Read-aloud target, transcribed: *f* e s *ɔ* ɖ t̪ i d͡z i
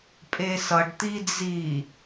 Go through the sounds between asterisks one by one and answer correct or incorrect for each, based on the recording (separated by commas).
incorrect, incorrect